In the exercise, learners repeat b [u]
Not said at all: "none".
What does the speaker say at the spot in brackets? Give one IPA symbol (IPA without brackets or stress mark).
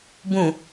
ũ